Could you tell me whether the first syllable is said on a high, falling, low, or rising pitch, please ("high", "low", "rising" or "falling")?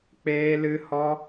high